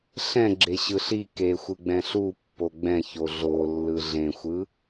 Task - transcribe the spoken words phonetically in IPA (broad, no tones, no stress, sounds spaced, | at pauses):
ɬ ɛ̃ ɡ͡ǁ e ɕ ɯ ɬ i k e xʷ ɯ ɡ͡b ɛ̃ ɬ u pː o ɡ͡b ɛ̃ ç o ɮ o lː ɯ ɮ ẽ xʷ ɯ